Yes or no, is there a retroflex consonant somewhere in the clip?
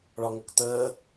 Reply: yes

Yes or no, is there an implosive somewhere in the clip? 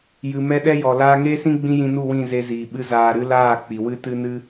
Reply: yes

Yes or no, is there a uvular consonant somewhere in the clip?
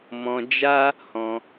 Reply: no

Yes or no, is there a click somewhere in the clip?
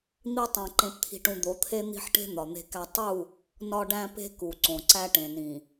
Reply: yes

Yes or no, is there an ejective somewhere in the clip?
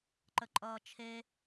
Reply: yes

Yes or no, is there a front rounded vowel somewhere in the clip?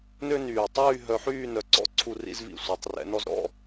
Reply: yes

